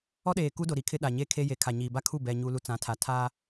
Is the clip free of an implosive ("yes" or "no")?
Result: no